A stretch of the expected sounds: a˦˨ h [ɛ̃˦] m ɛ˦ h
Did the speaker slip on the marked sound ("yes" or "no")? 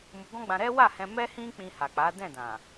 yes